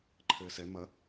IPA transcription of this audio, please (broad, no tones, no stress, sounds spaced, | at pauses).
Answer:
ǃʰ ɘː s ɛ m ɐ